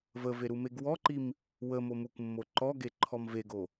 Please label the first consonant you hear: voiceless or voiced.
voiced